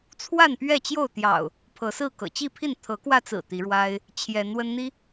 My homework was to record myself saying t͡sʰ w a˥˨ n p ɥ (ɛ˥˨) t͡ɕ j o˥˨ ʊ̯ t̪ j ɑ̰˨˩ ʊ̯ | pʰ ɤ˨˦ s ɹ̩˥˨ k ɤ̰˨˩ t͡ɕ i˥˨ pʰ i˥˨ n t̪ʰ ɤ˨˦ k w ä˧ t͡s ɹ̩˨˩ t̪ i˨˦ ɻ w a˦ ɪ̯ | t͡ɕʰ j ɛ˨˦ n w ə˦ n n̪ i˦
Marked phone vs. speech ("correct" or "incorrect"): correct